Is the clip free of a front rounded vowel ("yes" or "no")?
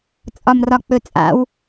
yes